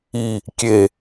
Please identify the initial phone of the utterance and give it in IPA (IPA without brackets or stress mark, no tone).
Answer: i